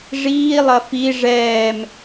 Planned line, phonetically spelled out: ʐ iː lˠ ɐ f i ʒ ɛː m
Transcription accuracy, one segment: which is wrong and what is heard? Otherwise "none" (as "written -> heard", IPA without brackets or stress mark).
ʒ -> ʐ